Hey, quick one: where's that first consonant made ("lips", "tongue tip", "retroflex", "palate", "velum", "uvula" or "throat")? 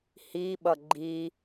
throat